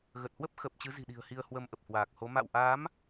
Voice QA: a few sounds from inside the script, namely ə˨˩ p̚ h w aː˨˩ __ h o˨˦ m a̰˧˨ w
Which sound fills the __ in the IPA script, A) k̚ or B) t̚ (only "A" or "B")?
A